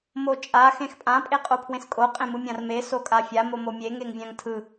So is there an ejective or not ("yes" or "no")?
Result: yes